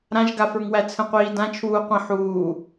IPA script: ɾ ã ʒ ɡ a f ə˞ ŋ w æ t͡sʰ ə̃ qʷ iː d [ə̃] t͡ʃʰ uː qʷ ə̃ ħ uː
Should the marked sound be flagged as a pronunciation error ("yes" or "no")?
yes